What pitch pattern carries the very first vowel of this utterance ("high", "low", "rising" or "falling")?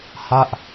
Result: falling